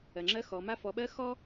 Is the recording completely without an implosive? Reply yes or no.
no